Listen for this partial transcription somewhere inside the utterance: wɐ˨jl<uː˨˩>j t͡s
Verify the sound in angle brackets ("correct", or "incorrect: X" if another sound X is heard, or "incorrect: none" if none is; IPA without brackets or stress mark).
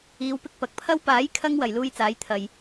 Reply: incorrect: uː˥